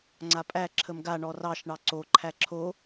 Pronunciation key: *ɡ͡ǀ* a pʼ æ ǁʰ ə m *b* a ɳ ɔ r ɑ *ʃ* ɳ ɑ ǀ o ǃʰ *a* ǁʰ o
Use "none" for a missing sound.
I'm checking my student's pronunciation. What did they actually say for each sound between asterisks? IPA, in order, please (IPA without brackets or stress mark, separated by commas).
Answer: ŋ͡ǀ, ɡ, ʃ, æ